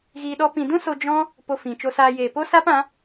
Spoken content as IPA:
ɣiː˧ɗɔ˦pĩ˧ dũ˦so˧ d͡ʒɔ̃˦ | po˧fĩ˨t͡ʃo˧saː˧ jeː˨po˦sa˦pã˨˦

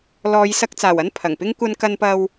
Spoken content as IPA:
lɔː˨˧jsɐ˧k̚t͡saː˨˩w ɐ˥npʰɐ˨˩ŋpɪ˥ŋ kʷɐ˧nkɐ˧npɐ˧w

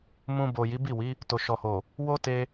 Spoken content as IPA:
mũ˧bo˨ ji˨˦bi˦˨wi˨˦ | to˨ʃɔ˨ho˨ | wo˦ te˧

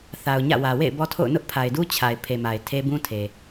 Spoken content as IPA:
θa˨ʊ̯ɲä̰˦˨wä˨ wḛ˦˨ɪ̯bɔ˦tʰo̰˦˨ʊ̯ nʊ˦ʔpʰa˨ɪ̯du˦ t͡ɕʰa˨ɪ̯ pʰe˨ma˨ɪ̯ tʰe˦ bũ˦tʰe˨

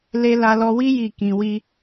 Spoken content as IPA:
le˦ la˧lɔ˧wi˦ ji˦˨kĩ˧ wi˦

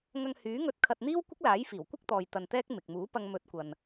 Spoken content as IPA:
ŋɐ˧ŋhyː˨˥ŋɵ˧t̚ kʰɐ˧t̚n̪iː˥w kʷɪ˥k̚laː˨˥jfiː˨˩w kʷɪ˥k̚t̪ɔː˨j t̪ɐ˧nt̪ɛː˥k̚ mɪ˨k̚ muː˨˥pɐ˧ŋ mɵ˨˥t̚ kʷɐ˧n

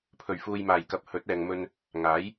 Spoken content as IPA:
pʰɵ˨˩ɥfuː˨jmaː˨˩j kɐ˧p̚ hɵ˨˥t̚ɛː˨ŋmɵ˧n | ŋaː˨˥j

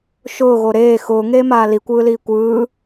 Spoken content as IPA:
ʃʊːɣo ɾeː xʊːŋeːmaː likʷɯːliː kʷɯː

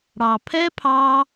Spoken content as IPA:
ɽɑ˩pʰɛ˦˥pʰɑ˧

